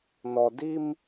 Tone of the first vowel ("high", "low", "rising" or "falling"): low